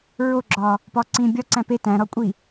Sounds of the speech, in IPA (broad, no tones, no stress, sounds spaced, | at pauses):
ɹ o ɡ͡ǁ ɒː | p ɒː ǀ ĩː bʲ ɒ ǀ æ̃ p e t æ̃ ɾ ɒ kʷʼ i